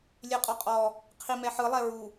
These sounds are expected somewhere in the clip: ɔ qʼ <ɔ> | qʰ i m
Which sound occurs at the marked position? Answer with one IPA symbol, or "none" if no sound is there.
ɔ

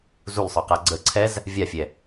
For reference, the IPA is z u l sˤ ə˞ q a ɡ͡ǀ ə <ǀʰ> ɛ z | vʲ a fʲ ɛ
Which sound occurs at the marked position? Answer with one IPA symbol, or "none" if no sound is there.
ǀʰ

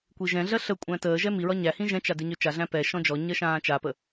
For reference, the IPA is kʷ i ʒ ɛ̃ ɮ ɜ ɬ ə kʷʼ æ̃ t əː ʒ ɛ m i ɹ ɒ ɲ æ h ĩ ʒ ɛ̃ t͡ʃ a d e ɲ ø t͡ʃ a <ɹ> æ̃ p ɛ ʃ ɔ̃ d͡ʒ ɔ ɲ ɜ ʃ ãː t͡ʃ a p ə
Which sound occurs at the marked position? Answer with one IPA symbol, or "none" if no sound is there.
ɮ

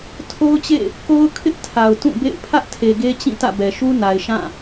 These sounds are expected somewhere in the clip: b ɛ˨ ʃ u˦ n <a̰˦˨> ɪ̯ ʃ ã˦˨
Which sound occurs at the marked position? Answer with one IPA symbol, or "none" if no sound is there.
a˨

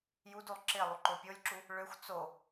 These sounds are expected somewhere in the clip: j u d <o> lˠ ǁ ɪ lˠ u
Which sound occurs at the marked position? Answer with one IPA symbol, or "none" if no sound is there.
u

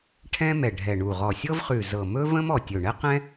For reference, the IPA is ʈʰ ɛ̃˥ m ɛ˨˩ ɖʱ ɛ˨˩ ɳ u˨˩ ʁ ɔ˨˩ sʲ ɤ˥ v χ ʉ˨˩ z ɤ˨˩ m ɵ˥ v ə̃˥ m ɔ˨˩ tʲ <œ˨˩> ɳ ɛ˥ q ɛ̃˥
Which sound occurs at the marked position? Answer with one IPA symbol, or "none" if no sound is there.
ɵ˨˩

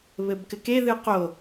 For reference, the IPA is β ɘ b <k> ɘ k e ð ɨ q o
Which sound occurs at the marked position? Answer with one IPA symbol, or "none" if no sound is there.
k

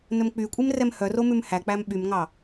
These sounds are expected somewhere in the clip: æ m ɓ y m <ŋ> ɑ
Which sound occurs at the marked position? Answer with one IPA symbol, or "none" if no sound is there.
ŋ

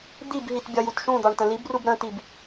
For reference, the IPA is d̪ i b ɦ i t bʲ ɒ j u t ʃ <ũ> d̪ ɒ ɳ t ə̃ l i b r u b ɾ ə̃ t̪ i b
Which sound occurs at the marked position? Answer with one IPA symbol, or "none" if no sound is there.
ũ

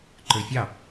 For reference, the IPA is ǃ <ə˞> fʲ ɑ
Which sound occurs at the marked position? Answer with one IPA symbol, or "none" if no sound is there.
ə˞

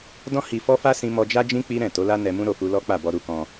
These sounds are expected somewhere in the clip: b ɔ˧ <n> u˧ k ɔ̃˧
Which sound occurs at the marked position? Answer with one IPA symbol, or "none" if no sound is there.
ɾ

